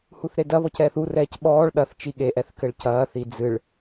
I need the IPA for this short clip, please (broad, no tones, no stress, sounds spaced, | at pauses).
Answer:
h u θ ɾ e d ɐ β ɔ c ɛː θ u r ɛː c ɓ ɔː ɭ ɗ ɐ θ t͡ʃ i ɠ e ʔ ɛ θ k ɘ ɭ c ɐː θ i d͡z ɨ ɭ